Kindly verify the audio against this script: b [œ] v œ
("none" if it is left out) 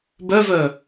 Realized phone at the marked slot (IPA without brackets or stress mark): œ